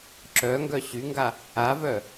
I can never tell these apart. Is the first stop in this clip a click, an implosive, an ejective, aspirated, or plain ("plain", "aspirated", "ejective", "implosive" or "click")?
click